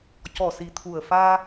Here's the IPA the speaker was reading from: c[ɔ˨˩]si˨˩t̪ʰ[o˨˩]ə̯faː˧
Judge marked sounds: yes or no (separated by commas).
yes, no